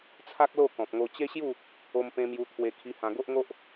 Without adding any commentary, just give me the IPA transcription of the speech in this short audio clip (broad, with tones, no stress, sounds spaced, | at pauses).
t͡sʰ a˦ k̚ l o˥˧ k ɔ̃˨ p̚ ŋ o˧ t͡ɕ e˦ ɕ j u˥˧ | o˧ m p ẽ˧ m j u˧ t̪ʰ w e˧ kʰ i˧ h ã˧ ɡ o˦ ʔ ŋ o˦ ʔ